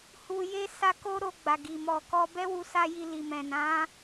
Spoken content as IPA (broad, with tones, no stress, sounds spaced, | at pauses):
h u˧ j e˦ s a˧ k o˦ ɾ o˧ ɡ͡b a˨ ɡ i˨ m ɔ˨ k ɔ˧ b ɛ˦ w u˧ s a˧ j i˨ l i˨ m ɛ̃˨ n ã˨˦